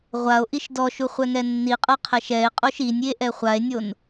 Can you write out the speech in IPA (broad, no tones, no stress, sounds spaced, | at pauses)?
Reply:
ʁʷ a o̯ ʔ i ʃ d ɔ ʃ u χʷ ɛ ŋ ɛ nː i qʼ ɤ qʰ ɛ ʃ ɛ e̯ qʼ o ʃ i nʲ i e̯ ʔ ɛ χʷ a e̯ nʲ o n